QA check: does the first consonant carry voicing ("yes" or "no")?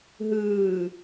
yes